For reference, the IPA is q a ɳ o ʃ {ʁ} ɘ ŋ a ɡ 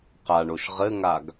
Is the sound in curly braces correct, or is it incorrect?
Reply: correct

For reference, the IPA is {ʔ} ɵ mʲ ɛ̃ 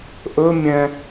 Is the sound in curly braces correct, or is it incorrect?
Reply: correct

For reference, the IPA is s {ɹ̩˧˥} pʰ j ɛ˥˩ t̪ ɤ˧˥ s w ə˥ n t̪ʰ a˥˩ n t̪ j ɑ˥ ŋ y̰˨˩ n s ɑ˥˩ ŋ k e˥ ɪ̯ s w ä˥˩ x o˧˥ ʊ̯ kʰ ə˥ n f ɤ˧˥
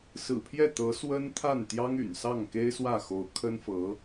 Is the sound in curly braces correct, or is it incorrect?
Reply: incorrect: ɹ̩˨˩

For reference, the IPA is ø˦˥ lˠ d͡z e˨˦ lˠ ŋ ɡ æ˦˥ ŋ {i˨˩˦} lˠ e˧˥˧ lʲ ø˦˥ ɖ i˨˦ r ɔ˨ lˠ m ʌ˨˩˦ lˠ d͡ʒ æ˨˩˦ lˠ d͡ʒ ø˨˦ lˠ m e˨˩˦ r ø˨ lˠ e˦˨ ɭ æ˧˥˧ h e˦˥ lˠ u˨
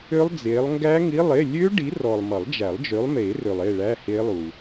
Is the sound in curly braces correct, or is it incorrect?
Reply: incorrect: i˧˥˧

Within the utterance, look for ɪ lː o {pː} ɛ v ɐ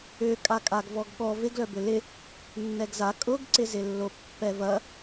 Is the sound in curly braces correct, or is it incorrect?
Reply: correct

